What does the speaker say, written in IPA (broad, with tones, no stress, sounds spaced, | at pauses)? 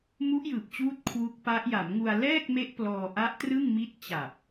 m u˦˥ ʔ j ɯː˨˩ p̚ t͡ɕ uː˦˥ t̚ kʰ w u˦˥ k̚ p a˦˥ ʔ j a˩˦ m ŋ u˧ a̯ l ɛː˥˩ k̚ m e˦˥ ʔ p l ɔː˧ ʔ a˦˥ ʔ t r ɯ˥˩ ŋ m i˦˥ t̚ t͡ɕ a˨˩ p̚